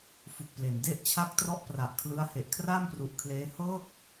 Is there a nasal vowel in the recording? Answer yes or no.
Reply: no